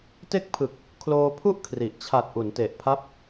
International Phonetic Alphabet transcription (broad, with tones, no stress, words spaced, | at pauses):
te˥˩k̚pʰɯ˨˩k̚ | kʰloː˧ pʰu˥˩ʔ kʰri˨˩ʔ t͡ɕʰa˨˩t̚ ʔu˩˦nte˨˩ʔpʰa˦˥p̚